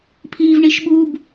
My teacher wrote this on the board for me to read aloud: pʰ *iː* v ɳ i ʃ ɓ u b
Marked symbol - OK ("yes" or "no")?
yes